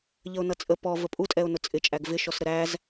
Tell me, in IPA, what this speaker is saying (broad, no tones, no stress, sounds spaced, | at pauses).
ʎ ə ʊ̯ n ʌ t͡sʼ ə p ɔ v ə pʼ u tʼ ɛ ʊ̯ n ʊ t͡sʼ ɪ t͡ʃʼ æ ɡ v ɪ ʃ ɔ s ɾ ə ɾ æ z